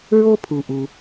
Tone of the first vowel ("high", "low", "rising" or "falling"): high